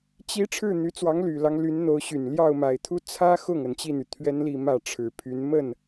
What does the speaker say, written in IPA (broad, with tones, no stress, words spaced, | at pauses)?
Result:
t͡ɕi˧˥ ʈ͡ʂʰɻ̩˥˩n̪y˧˥t͡swɑ˧˥ŋ ly˨˩lɑ˦ŋ ly˧˥nn̪o˧˥ʊ̯ɕy˨˩n ljɑ˥˩ʊ̯ma˨˩ɪ̯t̪ʰu˥ t͡sʰä˥xʊ˥˩ŋ ə˨˩nt͡ɕi˥˩n̪y˩ t̪ʰɥɛ˥nli˥˧ mä˥˩ʈ͡ʂʰɻ̩˨˩ pʰy˧˥nmə˥˩n